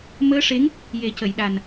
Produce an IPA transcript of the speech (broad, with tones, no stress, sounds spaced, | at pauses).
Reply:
m əː˧˥ ʂ e˧˥ ŋ | j e˨˩˦ c ə˨˩˨ j ɗ a˨˩ n